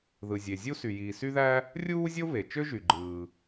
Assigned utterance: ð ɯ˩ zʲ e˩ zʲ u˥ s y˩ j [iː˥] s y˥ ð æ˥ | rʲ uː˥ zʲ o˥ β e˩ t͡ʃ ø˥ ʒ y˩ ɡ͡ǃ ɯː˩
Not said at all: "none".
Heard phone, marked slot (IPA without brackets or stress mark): iː˩